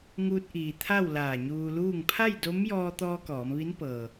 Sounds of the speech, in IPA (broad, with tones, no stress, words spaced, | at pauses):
ŋuː˧t̚ʔiː˩t̪ʰa˥˨w laː˧˩ɲuː˧luː˥˨ŋ pʰa˥˨j do˧˥m jɔː˧t̪ɔː˧ kɔː˩˧mʋi˧˥npɤː˩